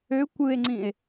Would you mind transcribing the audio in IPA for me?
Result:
ø kʷ ɯ e̯ ŋ͡ǀ ĩ e̯

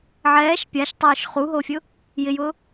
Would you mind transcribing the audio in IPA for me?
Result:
ʕ ɛː ʃ pʲ a ʃ tˤ ʊː ʃ χ u ɦ o fʲ ʊ | j ɪ j ʊː

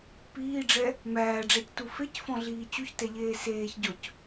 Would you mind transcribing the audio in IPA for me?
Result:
p iː ɖ͡ʐ ɛ | m æː ɖ͡ʐ æ c t u f e c f ɔ̃ ɮ iː t͡ɕ u ç t ɛ ʎ eː s eː ç ɟ ɔ c

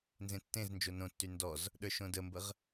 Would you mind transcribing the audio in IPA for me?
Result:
n z ẽ tː ẽ z n d͡ʒ o n õ tː y n d ɔ z | ɗ ə˞ ʃ õ d ə m b ə ʁ

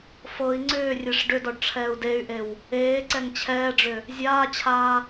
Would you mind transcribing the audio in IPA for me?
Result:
f ɤ i̯ ŋ͡ǀ ʏː rʲ e ʂ ɖ ʏ d ɔ ɖ ʈ͡ʂʰ ɛː u̯ d e y̯ ʔ e w | eː ǀ ɛ ŋ t͡ɕʰ ɛː ɖ͡ʐ ʏ | zʲ aː t͡ɕʰ aː

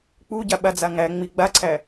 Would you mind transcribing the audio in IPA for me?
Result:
k͡p u ɟ a ɓ a d͡z a ŋ æ ŋ͡m i ɡ͡b a ǀʰ æ

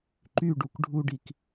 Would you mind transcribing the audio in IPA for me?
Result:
ǃ y ɖ u k ɖʱ u ɖ i k

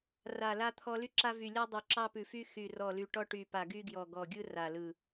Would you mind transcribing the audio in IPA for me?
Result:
r a˨˩ l a˧ t̪ʰ ɔ˧ l y˧ ǁ a˧ v y˨˩ lʲ ɔ˧ dˤ y˨˩ ǁ ɑ˧ p ʉ˨˩ f y˧ x y˨˩ r ɔ˨˩ l y˨˩ ʈ ɔ˧ ʈ y˨˩ p a˨˩ ɡ y˧ ɡ j ɔ˨˩ ɡ ɔ˨˩ ɡʲ ɯ˧ r a˨˩ l ɯ˨˩

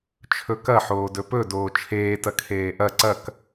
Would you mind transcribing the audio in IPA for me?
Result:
t͡ʃʰ ɵ k ɐ ħ oː d ɵ p ɵ d oː t͡ʃʰ eː t ɐ kʰ eː ʔ ɐ ǀ ɐ k

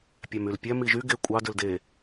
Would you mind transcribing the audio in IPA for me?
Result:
pʲ æ m y l pʲ æ m i ʒ y ɡ e kʷʼ ɑ d ø l d e

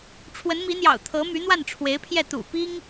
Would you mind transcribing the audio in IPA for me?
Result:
ʈ͡ʂʰ w ə˧˥ n m i˧˥ n̪ j ɑ̰˨˩ ʊ̯ t̪ʰ ɤ˧˥ m y˧˥ n̪ w a˥˩ n ʈ͡ʂʰ w e˧˥ ɪ̯ pʰ j ɛ˥˩ t̪ ṵ˨˩ p i˥ ŋ

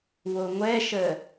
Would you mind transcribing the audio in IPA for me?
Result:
w o ŋʷ ɛ ʃ ə

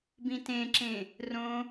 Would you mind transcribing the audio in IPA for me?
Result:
b ĩ t ẽ ǁ ẽ | r õ

